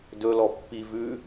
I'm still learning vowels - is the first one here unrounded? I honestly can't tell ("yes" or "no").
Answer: no